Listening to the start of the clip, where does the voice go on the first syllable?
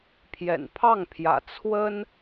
low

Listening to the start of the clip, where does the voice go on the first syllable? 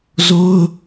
high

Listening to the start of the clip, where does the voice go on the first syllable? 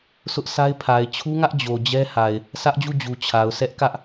high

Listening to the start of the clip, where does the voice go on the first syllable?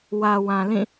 low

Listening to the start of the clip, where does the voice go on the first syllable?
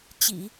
low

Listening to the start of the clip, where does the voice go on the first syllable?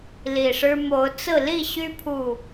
low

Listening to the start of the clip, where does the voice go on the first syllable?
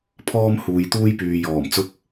high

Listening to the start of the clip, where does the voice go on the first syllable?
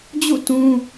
falling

